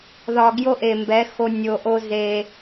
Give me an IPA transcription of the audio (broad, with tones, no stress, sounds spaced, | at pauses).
ð ɒ˨ ɡ j o˦ ʔ e˨ m b ɛ˨˦ x o˦ nʲ o˨ ʔ o˦ z e˦